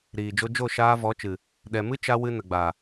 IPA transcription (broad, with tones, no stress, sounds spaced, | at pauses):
ɾ iː˨ d͡ʒ o˧ d͡ʒ o˦˨ ʃ aː˧ v ɔ˨˦ t͡ʃ ɨ˨ | ɗ ɛ˨ m ɨ˦ t͡ʃ a˧ w ɨ˧ n ə˨ ɡ͡b a˨